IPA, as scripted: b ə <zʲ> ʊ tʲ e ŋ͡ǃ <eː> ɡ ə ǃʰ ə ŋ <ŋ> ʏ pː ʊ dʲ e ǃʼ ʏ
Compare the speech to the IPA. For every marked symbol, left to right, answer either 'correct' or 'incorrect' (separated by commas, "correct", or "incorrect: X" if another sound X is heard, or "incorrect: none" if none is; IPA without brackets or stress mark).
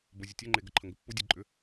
correct, incorrect: e, incorrect: ɡ